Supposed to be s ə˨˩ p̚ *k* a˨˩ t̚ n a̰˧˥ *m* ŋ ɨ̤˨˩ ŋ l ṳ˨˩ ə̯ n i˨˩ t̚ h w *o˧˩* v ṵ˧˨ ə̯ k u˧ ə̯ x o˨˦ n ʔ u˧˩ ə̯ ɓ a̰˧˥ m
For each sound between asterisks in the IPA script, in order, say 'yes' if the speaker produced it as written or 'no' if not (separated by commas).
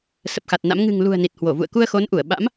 no, yes, yes